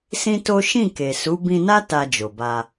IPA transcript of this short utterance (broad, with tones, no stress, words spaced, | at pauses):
sĩ˦to˦ ʃĩ˦˨ke˨su˨˦ bĩ˧na˦ ta˧d͡ʒo˨ba˧